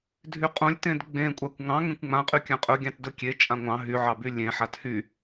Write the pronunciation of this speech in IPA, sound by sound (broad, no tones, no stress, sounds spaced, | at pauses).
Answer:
dʱ y qʼ õ lʲ t ẽ d ɡ͡b ẽ kʷʼ a kʷ ŋ ɑ̃ ŋ ẽ kʷ ŋ͡m ã qʼ y kʲ ã qʼ ɵ ɡʲ ɑ̃ t d ɵ kʲ e t͡ʃʼ ã ŋʷ ɑ̃ ɦ y ʕ ɑ b y lʲ ẽ ħ a t h y